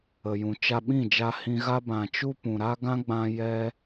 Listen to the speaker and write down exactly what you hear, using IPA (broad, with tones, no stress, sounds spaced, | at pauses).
ə˨ j ũ˨ t͡ʃ a˧ ɓ ĩ˦˨ d͡ʒ a˧ h ĩ˧ ɣ a˦ b ã˨ t͡ʃ u˧ p ũ˨ ɾ a˦ ɡ ã˦ ɡ͡b ã˧ j ɛ˧